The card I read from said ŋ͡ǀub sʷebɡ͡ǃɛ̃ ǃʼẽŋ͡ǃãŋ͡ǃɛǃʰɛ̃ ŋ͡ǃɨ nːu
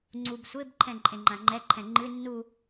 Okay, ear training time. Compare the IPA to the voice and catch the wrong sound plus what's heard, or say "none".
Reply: ɡ͡ǃ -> ǃʰ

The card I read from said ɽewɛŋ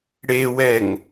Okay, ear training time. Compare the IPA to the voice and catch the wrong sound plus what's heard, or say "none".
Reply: none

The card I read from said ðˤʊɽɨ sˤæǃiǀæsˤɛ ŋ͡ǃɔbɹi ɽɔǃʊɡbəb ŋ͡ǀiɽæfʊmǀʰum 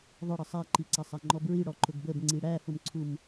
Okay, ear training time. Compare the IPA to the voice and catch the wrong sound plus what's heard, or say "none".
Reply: ɨ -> ə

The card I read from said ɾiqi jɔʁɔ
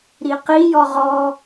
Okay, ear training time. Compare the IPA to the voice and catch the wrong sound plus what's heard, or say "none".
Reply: none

